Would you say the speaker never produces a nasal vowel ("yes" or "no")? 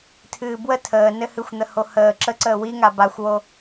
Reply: yes